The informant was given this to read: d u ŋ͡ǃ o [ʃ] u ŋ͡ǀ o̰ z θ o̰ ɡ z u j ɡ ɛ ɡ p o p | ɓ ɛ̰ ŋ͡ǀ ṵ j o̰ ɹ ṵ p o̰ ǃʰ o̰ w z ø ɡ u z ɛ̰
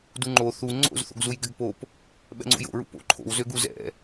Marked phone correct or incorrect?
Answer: incorrect: θ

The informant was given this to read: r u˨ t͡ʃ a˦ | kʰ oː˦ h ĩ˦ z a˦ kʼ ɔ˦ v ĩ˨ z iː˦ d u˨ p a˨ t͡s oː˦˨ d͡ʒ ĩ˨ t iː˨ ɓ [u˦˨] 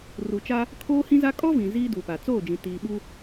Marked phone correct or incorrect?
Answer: incorrect: u˦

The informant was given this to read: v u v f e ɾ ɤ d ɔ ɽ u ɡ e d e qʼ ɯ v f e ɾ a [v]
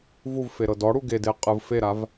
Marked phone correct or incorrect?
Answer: correct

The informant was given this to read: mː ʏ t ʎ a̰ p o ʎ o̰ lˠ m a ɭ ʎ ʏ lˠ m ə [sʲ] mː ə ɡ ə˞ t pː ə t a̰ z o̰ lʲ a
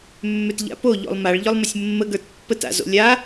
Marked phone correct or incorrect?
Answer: correct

